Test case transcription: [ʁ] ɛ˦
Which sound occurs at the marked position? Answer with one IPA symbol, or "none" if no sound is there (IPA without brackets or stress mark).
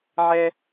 ʕ